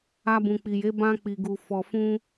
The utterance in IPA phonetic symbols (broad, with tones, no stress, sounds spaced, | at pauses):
a˧ b ũ˨ k͡p i˨ j e˨˦ b ã˦ k͡p i˧ ɡ u˧ f ɔ˧ f ũ˦